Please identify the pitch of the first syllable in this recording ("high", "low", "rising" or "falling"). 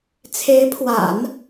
rising